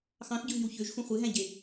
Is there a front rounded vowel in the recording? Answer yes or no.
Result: yes